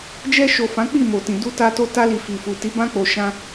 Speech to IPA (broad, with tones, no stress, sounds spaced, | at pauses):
d͡ʒ ɛ˧ ʃ o˨ f ã˨˦ k͡p i˦˨ m o˨ t ĩ˨ d u˧ t a˧ t o˧ t a˧ l i˨ f i˨ f u˨ t i˨˦ b ã˧ k͡p o˨ ʃ ã˧